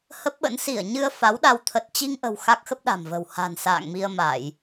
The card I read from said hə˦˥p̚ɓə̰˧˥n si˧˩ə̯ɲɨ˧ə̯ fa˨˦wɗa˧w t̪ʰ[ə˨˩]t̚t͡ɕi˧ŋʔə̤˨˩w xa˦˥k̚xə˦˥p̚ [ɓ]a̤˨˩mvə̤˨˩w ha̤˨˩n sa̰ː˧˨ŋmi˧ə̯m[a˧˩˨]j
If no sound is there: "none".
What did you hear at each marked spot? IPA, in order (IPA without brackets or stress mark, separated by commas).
ə˨˩, ɗ, a˧˩˨